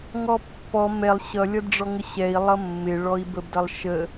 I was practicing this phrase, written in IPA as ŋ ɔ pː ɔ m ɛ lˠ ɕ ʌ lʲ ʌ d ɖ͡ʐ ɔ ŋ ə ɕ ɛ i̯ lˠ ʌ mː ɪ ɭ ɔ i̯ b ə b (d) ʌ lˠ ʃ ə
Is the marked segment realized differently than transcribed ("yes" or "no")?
no